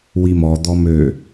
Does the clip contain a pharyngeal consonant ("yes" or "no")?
no